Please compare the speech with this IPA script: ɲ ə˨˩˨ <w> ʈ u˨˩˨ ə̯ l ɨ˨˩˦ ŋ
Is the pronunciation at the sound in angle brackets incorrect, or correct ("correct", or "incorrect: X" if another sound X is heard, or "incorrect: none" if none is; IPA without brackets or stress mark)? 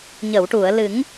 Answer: correct